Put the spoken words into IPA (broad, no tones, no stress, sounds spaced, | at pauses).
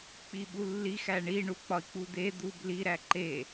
k͡p i ɓ u lː i x æ ɳ i ɳ u k͡p ɒ i̯ k͡p u d̪ e d̪ u b l i ɾ æ ǃ e